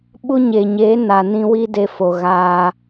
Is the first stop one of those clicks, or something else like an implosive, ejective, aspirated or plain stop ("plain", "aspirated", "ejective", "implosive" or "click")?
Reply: implosive